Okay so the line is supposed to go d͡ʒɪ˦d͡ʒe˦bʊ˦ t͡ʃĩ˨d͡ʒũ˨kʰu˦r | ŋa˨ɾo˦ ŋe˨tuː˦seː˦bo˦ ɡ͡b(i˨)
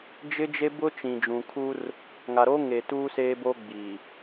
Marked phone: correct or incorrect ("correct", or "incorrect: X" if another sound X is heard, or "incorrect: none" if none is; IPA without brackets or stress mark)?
correct